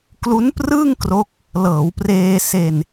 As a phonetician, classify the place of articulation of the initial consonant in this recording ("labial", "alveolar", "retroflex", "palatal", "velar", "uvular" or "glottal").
velar